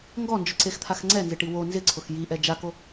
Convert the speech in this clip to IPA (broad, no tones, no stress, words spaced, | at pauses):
ŋɡɔnd͡ʒʊǀext̪ʰax ŋ͡ǀɛnzɪʈi wo nzɪǀʰʊx jiʔɛ d͡ʒako